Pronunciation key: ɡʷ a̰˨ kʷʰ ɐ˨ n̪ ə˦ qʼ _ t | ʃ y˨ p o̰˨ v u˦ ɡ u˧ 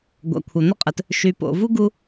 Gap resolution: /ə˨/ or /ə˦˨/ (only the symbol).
ə˨